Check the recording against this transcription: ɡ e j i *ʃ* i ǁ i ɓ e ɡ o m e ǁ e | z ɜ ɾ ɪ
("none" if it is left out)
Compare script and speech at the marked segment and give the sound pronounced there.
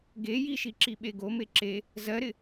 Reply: ʃ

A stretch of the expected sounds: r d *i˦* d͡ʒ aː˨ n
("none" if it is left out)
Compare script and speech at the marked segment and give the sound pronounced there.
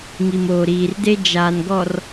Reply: e˦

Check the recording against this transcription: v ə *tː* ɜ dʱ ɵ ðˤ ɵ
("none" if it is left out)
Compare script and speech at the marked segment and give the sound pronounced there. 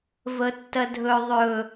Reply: tː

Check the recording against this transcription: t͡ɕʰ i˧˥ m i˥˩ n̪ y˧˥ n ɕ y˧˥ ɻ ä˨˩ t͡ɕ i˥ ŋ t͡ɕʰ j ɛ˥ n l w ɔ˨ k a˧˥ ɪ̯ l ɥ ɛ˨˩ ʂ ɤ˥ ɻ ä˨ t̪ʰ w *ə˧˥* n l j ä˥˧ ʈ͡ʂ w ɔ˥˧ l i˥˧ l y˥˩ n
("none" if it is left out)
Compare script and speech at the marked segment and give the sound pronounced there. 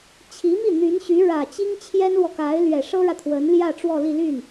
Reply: ə˧˥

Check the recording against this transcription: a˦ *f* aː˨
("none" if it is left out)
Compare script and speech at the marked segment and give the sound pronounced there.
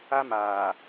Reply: m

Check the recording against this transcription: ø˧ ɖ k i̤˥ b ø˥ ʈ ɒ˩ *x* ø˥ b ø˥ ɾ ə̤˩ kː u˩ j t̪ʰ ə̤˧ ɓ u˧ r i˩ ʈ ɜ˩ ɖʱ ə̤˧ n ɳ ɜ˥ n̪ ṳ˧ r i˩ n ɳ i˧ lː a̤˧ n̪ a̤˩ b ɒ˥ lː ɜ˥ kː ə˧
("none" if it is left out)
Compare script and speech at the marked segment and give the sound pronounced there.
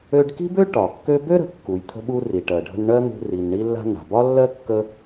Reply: kː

